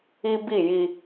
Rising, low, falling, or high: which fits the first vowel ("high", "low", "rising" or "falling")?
high